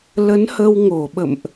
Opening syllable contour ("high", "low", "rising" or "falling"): rising